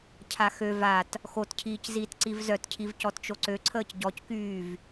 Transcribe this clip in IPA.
cʰ a x ø v a t | x o t cʰ iː c z iː t ǀ i v z œ t cʰ i v c ɔ t t͡ʃ o ǀ ø ǀʰ əː c ɟ ɔ c k yː v

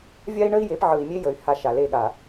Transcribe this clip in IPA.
vʲ a˦ i̯ ɳ ə˦ i̯ j e˨˦ p ʕ ɯ˨ i̯ mʲ e˦ j ə˨ y̯ h a˦˨ ʃ a˨ l e˦˨ ɠ a˨

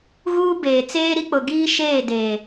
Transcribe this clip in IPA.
ɣ uː˦ b eː˨ t͡s eː˦ ɾ i˦ k͡p ʊ˨ ɡ iː˦ ʃ eː˦˨ d eː˨

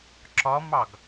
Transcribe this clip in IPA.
ǁ ɒ m ɑ ɡ

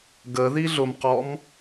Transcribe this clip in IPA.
ɡ ə ð i ɮ ʊ m q ɔ m

